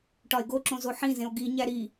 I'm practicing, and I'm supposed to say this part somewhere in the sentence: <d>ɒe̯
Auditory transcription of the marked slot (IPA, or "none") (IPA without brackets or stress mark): ʈ